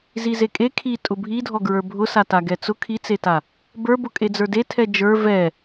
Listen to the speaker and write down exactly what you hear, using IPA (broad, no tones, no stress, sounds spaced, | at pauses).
z i z e kʼ e kʰ i tʼ ʊ bʱ i dʱ ɔ ɡ ɹ ə˞ bʱ ʊ s a t a ɡ ɛ t͡s ʊ kʰ i t͡s e t a | b ə˞ b ʊ kʼ e d͡z ə˞ d e tʰ ɛ d͡ʒ ə˞ v ɛ